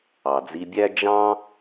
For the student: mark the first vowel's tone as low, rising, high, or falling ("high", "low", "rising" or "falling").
low